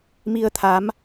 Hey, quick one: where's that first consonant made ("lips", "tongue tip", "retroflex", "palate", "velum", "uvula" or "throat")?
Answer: lips